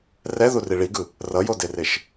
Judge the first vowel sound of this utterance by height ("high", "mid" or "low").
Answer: mid